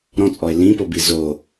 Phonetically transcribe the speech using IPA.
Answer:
ɾɔ̃t͡sʼɔe̯ lĩpobi zo

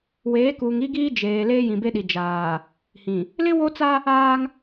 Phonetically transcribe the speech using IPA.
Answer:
weː˨˦kuː˨ŋ i˦ɡiː˦ d͡ʒeː˨ leː˦jĩ˨be˦ɗi˨ d͡ʒaː˨ | hĩ˨ | lɪ˦wo˦t͡sa˦ | aː˦ŋ

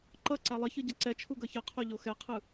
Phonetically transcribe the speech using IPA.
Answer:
ǃʌ ǀalˠʌçɯ ɟʌǀɛt͡ʃʰu ɡʌçʌqʰo ʎoxɛqʰɯ

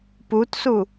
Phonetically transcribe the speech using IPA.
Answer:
putsu

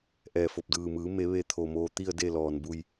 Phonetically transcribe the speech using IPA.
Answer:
ʔɛː˧˩fo˧˩p̚ dɯː˩mɯː˩˧me˩˧ ʋe˧ t̪ʰo˩ moː˧t̪i˥˨ə̯de˥˨lɔː˩n bu˧˩j

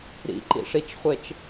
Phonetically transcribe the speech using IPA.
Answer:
ɾḭǃḭʂit͡ʃχʷet͡ʃ

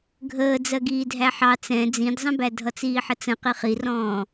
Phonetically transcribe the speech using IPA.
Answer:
ɡʱəː d͡zɜɡiːdʱæħɑ t͡sɛ̃ d͡zĩdzˤə̃bæ dʱʌt͡siːħət͡sə̃ qiχirɔ̃ː

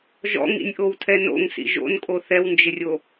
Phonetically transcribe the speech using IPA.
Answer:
ʒɔ̰ŋḭnʲʔowtʰɛ no̰ŋsḭ ʒo̰nkʼo θɛwnd͡ʒɪrʲo

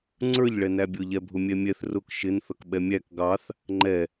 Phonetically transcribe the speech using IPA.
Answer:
ŋ͡ǀə˞ʎɭɛ næbʲʊʎɛbʱʊ mʲɛmʲɛθ rʊk ʃɪnθʌk ɓɛmʲæk ɡɑθ | ŋ͡ǃɛ

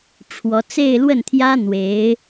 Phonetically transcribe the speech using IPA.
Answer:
ʈ͡ʂʰwɔ˧˥ t͡se˥˧ɪ̯lwə˥˩nt̪ʰjä˥ n̪we˧˥ɪ̯

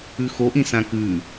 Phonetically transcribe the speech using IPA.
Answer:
ʉxoʔĩ sãkʉ

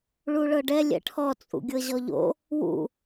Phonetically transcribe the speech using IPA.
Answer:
ɭuɭɤɖɛ lʲɛ̰ʈʰɔ t͡sʼṵɡʲɤʑɔʎo̰ | wṵ

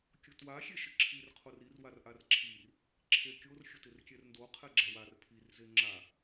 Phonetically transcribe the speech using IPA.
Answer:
kʲʊtwa xʲeʃɪǁʰir qʰorir warʔarǁʰir | ǁʰekʲor xʲʊtɪrkʲɛrndo qʰɛɡ͡ǁawar pʰir zeŋ͡ǁa

